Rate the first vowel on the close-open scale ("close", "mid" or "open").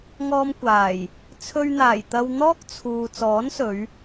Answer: mid